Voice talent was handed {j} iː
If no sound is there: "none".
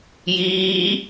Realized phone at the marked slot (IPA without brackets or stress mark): j